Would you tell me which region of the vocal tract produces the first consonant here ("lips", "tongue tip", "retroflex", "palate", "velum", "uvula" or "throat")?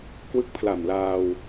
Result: velum